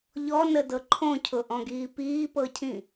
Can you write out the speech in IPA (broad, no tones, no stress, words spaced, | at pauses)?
ʎɔnədɤ ǃʰõcʰʊʔɔ̃ɡiː piːpɤcʰĩ